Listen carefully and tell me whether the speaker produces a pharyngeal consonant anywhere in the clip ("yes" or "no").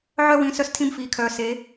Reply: yes